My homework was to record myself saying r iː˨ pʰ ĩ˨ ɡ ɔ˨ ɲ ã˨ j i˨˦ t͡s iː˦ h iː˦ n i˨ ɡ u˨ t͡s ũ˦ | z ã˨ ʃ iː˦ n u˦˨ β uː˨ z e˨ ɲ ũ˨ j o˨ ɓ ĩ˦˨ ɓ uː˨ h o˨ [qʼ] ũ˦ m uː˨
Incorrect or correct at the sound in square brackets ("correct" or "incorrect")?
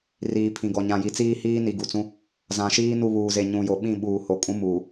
incorrect